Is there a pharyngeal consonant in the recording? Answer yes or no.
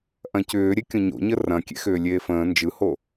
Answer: no